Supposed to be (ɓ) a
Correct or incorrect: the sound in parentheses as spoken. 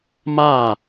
incorrect: m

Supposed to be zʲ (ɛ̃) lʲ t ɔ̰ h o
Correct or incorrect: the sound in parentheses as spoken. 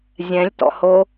correct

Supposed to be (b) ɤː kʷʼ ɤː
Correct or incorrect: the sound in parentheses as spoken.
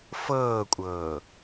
incorrect: f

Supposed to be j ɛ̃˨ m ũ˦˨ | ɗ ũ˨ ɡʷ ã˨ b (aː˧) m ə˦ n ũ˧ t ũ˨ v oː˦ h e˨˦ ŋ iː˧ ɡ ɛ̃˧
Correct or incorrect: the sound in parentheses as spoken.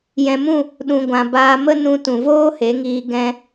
correct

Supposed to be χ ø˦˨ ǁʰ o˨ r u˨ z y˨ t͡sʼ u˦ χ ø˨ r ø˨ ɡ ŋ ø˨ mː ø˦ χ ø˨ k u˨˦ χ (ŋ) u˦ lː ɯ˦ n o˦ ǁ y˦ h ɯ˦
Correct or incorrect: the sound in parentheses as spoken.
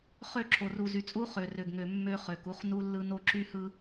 incorrect: n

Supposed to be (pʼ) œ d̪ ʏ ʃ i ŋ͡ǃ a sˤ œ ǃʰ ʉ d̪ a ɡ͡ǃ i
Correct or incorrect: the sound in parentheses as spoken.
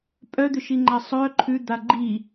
correct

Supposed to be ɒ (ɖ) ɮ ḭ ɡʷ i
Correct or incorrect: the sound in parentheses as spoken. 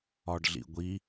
correct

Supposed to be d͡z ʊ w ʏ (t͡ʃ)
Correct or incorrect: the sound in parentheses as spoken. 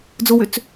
incorrect: t͡s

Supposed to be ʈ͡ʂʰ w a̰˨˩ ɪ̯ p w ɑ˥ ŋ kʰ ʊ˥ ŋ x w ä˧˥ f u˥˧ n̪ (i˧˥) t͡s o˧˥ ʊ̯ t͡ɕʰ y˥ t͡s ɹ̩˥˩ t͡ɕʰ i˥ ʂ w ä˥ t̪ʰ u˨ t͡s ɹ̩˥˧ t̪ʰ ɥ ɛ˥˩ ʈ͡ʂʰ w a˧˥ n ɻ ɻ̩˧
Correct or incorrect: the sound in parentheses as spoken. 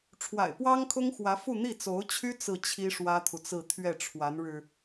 incorrect: i˥˩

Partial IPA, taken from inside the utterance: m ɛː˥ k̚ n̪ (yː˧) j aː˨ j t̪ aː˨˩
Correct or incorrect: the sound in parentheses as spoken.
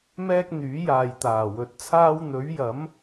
incorrect: yː˨˥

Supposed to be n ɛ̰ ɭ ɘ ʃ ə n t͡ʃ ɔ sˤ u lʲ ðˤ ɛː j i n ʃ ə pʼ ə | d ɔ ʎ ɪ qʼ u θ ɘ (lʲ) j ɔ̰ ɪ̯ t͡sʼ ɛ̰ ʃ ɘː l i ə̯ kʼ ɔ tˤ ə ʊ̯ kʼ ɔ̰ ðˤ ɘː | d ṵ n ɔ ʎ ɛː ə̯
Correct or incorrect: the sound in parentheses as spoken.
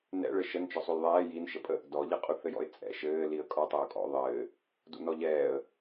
incorrect: none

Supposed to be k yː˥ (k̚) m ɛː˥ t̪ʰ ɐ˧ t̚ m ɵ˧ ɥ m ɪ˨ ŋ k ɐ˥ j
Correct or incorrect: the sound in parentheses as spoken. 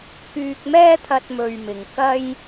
correct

